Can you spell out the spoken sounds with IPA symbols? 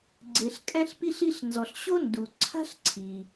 ɡ͡ǀ e˩ ɬ kʼ ɛ̃˧ ɬ p i˧ ɬ i˧ ɬ n z ɔ˩ ɬ ɕ o˥ n d u˩ ǀʰ a̤˥ ɬ ǀʰ i˩

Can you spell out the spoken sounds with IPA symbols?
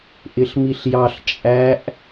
ʔ ɪ ɬ m i ɬ j ɑ ɬ t͡ʃʼ æ ʔ

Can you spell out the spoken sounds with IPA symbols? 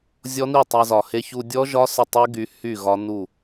zʲ ɔ˦˥ n i˥˩ tˤ a˧ z ɒ˨˩ h e˧ ç u˧ dʲ ɔ˦˥ ʒ ɒ˦˥ s ə˥˩ tˤ y˦˥ ɡ y˦˥ h y˥˩ ɣ ɒ˦˥ n u˥˩

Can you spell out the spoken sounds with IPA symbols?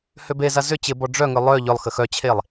h ø b e z a z ʏ t͡ɕ ɪ b ɔ ɖ͡ʐ œ ŋ ʏ lˠ œ ʎ ʏ lˠ x ə x œ t͡ɕʰ e lˠ

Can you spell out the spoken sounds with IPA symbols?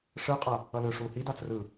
ʂ ɯ qʼ ʌ | ʌ l ɯ ʂ u h i d a t͡s r ɯ

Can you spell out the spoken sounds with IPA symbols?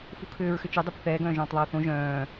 f u kʰ ʏː ɹ x ʏ t͡ʃ œ dˤ ɛ p θ ɛː ɡ œ̃ː ʒ œ̃ː tˤ ðˤ a ʊ̯ θ õ ʒ œ̃ː

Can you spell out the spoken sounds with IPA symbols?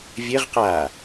vʲ ɘ ʁ q aː

